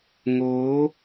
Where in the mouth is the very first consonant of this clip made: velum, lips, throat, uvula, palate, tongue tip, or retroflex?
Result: velum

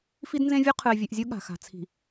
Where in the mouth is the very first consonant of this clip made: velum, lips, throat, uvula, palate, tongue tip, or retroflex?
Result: lips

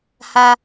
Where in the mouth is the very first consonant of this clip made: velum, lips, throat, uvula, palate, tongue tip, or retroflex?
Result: throat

